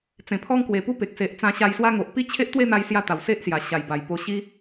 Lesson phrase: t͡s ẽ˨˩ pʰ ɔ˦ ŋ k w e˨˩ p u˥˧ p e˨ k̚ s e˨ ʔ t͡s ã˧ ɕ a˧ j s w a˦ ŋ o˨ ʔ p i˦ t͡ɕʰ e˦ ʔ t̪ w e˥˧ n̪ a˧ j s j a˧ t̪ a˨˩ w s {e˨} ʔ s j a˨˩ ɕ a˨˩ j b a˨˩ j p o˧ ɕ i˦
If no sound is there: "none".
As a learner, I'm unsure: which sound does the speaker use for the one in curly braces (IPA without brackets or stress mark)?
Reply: e˦